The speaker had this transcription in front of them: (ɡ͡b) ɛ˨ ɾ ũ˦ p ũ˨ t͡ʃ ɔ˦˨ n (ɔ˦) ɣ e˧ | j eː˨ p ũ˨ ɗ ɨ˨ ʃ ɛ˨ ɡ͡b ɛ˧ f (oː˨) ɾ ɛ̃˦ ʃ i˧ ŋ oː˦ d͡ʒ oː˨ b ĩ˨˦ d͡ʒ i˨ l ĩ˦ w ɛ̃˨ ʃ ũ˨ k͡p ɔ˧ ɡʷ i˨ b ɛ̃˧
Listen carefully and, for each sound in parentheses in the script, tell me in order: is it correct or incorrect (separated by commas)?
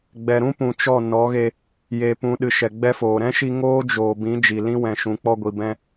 correct, incorrect, correct